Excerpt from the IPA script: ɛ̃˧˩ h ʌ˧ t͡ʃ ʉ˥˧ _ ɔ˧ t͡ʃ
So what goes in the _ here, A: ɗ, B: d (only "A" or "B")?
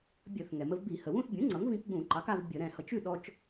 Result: A